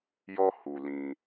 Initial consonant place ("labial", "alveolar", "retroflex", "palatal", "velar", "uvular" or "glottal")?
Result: palatal